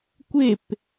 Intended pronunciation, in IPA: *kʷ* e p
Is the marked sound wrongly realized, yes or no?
no